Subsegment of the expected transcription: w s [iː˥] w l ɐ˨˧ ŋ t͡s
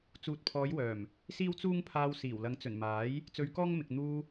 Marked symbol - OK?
no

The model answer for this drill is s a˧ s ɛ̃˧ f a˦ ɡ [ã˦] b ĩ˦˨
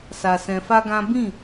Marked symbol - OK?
yes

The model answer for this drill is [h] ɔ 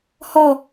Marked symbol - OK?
yes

